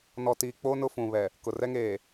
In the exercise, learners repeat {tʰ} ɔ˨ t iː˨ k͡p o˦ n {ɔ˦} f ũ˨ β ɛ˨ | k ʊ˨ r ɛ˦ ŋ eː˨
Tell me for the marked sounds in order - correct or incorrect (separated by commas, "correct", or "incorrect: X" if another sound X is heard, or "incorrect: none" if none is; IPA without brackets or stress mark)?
incorrect: n, incorrect: ʊ˦